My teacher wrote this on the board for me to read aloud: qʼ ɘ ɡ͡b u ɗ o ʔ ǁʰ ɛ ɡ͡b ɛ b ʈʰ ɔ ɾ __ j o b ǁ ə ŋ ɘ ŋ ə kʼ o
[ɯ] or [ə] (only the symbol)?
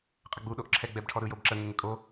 ɯ